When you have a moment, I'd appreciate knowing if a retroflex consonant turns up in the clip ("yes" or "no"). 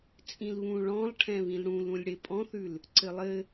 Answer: yes